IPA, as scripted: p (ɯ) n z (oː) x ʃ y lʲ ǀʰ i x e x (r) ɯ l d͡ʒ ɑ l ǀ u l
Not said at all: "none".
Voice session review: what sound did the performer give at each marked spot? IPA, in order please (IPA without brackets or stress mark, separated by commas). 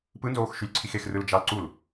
ɯ, oː, r